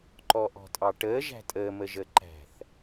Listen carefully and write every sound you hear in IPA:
ǃ ɔ ʔ ɔ̤ tʼ ɑ ʈ əː ʒ æ̤ tʼ əː m ə ʒ ə ǃ æ̤ θ

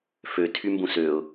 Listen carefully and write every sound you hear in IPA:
f ø tʰ y m b ũ s ø ʊ̯

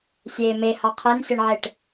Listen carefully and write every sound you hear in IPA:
sʲ eː m e h ɑ qʰ e n sʲ ʌ ɳ ʕ e ʈ

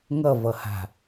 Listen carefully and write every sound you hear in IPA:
ŋ ʌ v ʌ h a̤

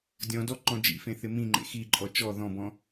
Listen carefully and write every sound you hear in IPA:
dʲ ɔ̃ d ɔ ǃ ɔ̃ d͡ʒ ḭ f ẽ θ ɪ m ĩ ŋ͡ǃ ḛ x i ǃʼ ɔ t͡ʃ ɔ ð ɔ̃ b ɔ̃

